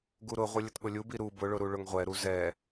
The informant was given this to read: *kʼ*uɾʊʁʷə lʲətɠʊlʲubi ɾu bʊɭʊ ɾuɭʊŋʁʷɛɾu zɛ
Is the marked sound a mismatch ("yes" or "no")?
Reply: yes